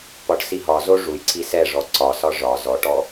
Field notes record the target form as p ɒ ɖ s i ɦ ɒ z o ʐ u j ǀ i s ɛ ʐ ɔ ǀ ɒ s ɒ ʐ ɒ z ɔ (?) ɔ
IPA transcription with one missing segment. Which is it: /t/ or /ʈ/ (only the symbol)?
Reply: ʈ